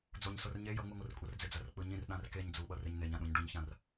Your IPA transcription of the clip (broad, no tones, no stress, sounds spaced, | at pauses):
d͡z o ɲ s o r ɲ e j ʌ ŋ͡m ɯ ŋʷ ɯ r kʷʼ ʌ r d͡z e d͡z a r k͡p ɯ ɲ ĩ r ɗ ã r k e ɲ d͡z u ɓ ʌ r e ɲ n e ɲ ã ɗ ũ ɲ ɖ u ɲ ç ã r